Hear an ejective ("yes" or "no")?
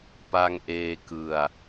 no